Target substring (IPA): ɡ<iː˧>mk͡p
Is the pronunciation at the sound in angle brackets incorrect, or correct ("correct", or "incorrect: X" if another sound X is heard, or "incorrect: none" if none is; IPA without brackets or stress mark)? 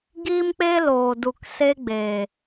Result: incorrect: iː˦